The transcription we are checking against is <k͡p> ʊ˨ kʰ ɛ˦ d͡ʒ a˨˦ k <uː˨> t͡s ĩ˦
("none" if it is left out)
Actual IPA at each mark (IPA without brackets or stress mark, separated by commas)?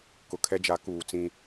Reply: k, uː˨